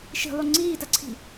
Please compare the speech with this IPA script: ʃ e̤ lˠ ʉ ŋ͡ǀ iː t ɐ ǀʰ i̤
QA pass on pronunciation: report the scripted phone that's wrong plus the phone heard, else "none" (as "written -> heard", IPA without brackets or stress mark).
e̤ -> i̤